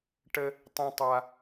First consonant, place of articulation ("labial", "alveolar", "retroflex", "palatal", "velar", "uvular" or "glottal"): retroflex